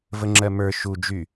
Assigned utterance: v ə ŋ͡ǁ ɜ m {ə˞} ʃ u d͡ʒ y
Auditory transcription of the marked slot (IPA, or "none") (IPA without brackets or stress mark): ə˞